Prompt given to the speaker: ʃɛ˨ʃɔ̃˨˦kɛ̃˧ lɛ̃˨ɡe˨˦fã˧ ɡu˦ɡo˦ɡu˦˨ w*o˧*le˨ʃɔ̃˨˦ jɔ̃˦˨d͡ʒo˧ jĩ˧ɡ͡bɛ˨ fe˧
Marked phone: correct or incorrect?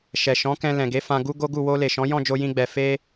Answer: correct